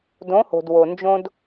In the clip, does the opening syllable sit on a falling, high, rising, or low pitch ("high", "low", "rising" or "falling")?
rising